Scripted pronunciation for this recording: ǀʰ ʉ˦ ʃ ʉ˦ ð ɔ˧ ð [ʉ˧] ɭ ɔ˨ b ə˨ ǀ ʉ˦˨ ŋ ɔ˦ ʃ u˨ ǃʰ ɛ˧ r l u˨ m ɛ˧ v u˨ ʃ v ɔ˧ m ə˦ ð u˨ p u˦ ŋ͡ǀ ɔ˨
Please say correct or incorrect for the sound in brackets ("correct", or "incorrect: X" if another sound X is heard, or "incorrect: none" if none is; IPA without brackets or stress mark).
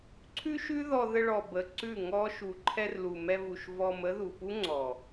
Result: incorrect: ə˧